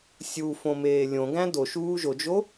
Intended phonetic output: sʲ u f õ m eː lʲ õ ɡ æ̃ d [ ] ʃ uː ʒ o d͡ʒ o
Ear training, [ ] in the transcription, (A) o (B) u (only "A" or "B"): A